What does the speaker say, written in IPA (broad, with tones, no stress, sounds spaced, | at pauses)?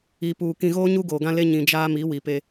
i˨ p uː˨ k ĩ˨ ɣ oː˦ ɲ u˦ ɡ oː˨ ɡ ã˦ l e˦ ɲ ĩ˨ d͡ʒ aː˦ m i˨˦ w i˨ p e˦